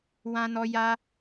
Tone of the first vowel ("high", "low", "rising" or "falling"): high